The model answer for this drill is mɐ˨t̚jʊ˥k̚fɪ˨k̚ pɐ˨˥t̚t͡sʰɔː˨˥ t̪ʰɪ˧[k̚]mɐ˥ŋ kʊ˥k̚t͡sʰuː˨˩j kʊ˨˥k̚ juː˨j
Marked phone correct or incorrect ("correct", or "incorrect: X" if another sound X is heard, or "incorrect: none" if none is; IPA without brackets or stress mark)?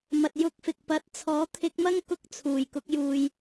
correct